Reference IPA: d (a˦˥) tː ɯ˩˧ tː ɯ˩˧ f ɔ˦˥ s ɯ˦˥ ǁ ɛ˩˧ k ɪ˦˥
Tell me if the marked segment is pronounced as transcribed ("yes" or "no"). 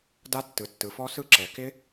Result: yes